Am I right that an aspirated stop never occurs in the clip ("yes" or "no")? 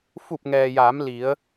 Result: yes